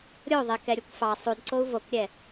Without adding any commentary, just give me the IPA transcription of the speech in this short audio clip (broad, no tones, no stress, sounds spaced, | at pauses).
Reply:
ɾʲ o ðˤ e k ɛ ɾʲ u kʷ f ɑ sˤ u d ǀ o u̯ v o k ɾʲ ɛ